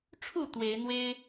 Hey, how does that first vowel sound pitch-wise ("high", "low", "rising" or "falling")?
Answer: falling